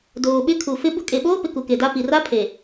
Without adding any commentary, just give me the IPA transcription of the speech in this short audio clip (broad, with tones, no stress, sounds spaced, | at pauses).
d oː˨ ɓ ɪ˦ kʰ u˨ f ɪ˦ b ʊ˦ kʼ e˨ ɓ oː˦ p ɪ˨ k u˨ k e˨ d a˦ p i˨ r a˦ pʰ e˨